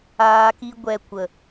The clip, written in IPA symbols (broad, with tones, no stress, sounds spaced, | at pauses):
aː˧ k i˧ ɡʷ ɛ˧ kʷ ə˨